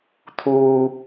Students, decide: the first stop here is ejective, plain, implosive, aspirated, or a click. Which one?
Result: aspirated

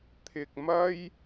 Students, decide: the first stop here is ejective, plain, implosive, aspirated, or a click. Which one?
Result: aspirated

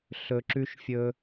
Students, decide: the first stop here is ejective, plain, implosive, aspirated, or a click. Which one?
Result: click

